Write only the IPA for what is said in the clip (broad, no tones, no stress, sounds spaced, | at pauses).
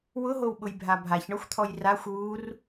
w ʊ ɦ o w ɓ ʊ j bʱ a bʱ a ç ɳ ɔ xʷ t̪ʰ ɔ j r a xʷ w u r